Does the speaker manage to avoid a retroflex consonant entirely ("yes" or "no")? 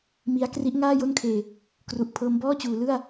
yes